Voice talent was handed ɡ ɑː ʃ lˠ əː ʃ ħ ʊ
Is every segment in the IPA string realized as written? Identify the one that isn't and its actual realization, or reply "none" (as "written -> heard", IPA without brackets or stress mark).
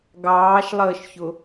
ħ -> ç